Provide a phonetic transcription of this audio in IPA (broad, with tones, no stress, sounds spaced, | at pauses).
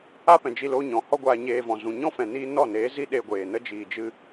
a˦ p ɛ̃˨ d͡ʒ i˧ l oː˦ ɲ ɔ̃˨ h ɔ˦ ɡʷ aː˧ ɲ eː˧ v ɔ̃˨ z ũ˨ ɲ ɔ̃˦ f ɛ̃˨ n iː˦ n ɔ˦˨ n eː˨˦ z i˦ ɗ e˧ ɡʷ eː˨ n ə˦ d͡ʒ iː˨ d͡ʒ ɨ˦